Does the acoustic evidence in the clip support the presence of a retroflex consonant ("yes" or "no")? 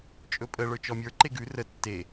yes